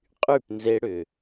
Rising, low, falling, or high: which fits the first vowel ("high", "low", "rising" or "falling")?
falling